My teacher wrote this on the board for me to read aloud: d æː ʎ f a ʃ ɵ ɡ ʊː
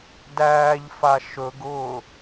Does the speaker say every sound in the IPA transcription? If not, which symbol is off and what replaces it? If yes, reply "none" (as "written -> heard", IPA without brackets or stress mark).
none